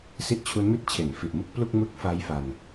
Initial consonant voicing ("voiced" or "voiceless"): voiceless